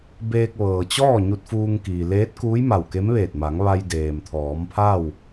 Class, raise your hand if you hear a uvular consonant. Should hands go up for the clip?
no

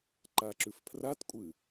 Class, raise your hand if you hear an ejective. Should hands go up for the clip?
yes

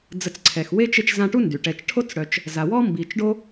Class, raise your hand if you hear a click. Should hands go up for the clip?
yes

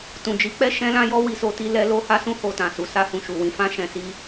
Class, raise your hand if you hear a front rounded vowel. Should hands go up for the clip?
no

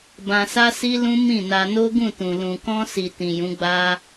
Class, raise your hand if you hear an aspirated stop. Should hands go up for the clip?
no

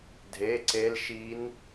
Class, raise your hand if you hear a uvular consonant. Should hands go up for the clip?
no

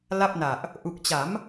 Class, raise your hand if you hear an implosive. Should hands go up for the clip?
no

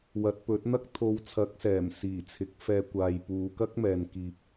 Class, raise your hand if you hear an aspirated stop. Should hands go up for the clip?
yes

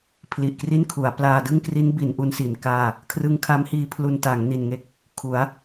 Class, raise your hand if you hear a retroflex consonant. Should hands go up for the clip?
no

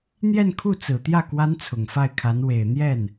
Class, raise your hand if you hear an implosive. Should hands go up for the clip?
no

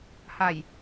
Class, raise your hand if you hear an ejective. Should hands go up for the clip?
no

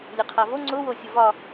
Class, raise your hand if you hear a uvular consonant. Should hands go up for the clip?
yes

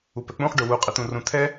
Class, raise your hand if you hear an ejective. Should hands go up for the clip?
yes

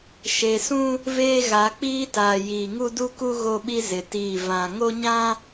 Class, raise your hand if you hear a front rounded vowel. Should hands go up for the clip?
no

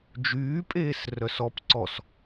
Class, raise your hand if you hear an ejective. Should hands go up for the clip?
yes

